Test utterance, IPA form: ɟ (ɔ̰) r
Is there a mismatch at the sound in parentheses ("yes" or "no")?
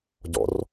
no